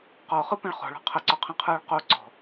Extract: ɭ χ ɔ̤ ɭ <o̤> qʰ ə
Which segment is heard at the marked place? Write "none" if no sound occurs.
ɔ̤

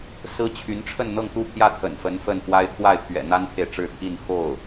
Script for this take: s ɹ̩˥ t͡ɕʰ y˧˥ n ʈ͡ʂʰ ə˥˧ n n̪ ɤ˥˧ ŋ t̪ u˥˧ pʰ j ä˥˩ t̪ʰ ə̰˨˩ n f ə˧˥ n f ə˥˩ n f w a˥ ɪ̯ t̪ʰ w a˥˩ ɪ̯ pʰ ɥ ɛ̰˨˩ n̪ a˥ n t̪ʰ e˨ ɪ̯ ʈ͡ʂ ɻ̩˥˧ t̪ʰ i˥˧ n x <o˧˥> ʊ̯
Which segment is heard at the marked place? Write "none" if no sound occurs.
o˥˩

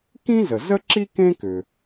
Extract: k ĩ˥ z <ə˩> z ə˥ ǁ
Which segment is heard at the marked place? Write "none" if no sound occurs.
ə˩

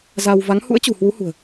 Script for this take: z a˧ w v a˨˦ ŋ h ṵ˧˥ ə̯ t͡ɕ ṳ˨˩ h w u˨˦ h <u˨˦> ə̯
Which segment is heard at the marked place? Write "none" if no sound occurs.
ṳ˨˩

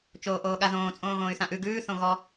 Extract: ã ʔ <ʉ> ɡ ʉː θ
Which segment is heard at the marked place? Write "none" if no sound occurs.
ʉ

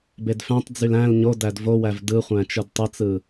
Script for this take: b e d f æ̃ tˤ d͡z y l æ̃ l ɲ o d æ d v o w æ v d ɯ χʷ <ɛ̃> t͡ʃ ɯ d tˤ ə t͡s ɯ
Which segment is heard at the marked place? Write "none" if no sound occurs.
æ̃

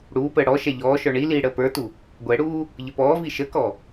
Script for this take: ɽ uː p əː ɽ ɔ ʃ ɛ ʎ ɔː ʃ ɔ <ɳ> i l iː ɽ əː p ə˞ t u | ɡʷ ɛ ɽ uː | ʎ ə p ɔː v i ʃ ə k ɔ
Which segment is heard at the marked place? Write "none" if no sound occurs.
ɳ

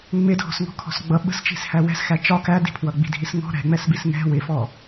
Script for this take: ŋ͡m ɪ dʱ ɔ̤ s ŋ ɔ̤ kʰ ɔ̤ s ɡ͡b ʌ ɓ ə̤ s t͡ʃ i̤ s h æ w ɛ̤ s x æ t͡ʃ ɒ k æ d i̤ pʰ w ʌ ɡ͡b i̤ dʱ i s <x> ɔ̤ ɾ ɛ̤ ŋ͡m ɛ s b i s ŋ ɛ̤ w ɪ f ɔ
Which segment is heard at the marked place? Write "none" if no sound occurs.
ŋ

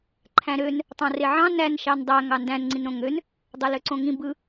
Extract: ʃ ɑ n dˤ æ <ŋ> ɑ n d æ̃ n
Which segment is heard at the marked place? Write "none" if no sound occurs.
ŋ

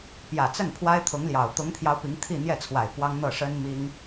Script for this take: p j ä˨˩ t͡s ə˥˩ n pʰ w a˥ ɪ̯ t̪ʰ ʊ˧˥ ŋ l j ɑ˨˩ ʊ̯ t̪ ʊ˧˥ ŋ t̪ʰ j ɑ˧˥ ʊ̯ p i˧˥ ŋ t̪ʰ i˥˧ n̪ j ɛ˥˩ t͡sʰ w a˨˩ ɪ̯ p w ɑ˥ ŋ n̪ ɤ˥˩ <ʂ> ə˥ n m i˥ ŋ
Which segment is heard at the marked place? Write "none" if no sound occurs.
ʂ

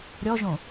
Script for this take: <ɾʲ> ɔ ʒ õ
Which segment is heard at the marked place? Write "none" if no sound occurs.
ɾʲ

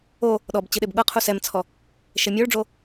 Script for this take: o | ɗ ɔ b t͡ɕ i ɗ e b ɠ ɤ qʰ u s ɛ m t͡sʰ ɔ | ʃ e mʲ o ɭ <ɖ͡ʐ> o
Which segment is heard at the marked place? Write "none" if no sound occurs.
ɖ͡ʐ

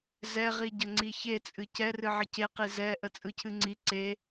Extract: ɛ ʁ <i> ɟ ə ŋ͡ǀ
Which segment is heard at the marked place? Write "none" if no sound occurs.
i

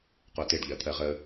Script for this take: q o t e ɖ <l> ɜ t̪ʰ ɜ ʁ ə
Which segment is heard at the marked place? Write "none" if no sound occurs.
ʎ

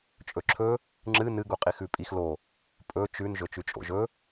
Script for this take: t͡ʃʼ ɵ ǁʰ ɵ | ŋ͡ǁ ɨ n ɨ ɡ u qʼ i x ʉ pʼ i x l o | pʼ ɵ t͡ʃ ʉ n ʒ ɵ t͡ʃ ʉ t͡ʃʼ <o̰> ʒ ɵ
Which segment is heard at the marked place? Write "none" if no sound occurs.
o̰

